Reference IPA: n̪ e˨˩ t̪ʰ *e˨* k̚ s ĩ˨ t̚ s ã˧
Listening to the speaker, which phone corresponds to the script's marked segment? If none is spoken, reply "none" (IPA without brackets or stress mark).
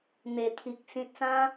i˨